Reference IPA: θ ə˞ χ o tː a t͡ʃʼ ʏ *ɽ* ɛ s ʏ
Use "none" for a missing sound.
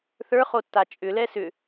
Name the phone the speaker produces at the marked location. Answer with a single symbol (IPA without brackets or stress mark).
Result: l